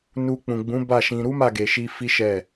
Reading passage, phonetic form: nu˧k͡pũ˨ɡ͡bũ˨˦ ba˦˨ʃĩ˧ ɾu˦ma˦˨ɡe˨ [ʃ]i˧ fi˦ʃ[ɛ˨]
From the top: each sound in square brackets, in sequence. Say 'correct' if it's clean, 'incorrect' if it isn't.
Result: correct, incorrect

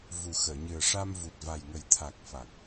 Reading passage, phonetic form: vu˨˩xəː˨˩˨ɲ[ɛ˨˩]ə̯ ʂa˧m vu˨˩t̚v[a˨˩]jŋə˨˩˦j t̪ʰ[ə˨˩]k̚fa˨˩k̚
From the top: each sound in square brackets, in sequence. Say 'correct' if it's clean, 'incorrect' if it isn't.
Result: incorrect, correct, incorrect

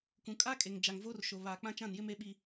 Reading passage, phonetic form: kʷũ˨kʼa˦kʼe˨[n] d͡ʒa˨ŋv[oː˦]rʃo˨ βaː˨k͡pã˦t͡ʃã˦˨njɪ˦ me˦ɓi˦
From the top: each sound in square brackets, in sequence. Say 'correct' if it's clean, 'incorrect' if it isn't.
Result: incorrect, correct

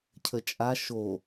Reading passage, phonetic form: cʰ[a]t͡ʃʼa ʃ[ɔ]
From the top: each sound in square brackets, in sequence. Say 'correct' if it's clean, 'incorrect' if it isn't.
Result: incorrect, incorrect

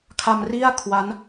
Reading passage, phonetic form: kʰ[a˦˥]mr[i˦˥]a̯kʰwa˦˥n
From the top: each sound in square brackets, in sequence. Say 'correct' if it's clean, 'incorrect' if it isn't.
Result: incorrect, incorrect

